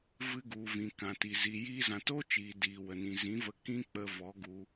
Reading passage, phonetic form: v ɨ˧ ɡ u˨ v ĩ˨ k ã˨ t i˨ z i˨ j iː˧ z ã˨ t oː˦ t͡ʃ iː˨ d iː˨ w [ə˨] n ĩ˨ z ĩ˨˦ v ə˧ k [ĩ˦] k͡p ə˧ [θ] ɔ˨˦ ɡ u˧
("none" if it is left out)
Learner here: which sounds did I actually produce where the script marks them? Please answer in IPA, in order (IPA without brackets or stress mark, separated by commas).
ə˨, ĩ˦, v